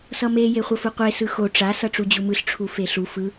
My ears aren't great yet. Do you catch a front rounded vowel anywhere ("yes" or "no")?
no